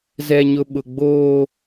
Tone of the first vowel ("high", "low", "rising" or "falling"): low